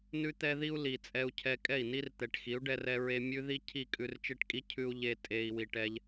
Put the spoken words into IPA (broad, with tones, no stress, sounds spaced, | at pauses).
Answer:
n ʉ˦ t̪ ɛ˦ ð i˦ u̯ l i˨ t͡sʼ ɛ˧ u̯ cʰ ɛ˧ kʼ ɛ˦˨ i̯ n i˦ r t̪ ɛ˨ ʈ x i˨˦ u̯ ɖ ɛ˧ r ɛ˧ ɹ e˧ mʲ ʉ˦ ð i˦ cʰ i˦˨ kʼ ʉ˧ r t͡ʃ e˦ ʈ kʼ i˦ cʰ ʉ˦ u̯ ʎ e˧ tʼ e˨ i̯ w i˨ ʈ ɛ˧ ʎ